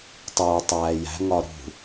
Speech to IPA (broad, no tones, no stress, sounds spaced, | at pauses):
tˤ uː tˤ æː j æ̤ ŋ ɒ ɾ ṳ